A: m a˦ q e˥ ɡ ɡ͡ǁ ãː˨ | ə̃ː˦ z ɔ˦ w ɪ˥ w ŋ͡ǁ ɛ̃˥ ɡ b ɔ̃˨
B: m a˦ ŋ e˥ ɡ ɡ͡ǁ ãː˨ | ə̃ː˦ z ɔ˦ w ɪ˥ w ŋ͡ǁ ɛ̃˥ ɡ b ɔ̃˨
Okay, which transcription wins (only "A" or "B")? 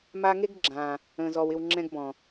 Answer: B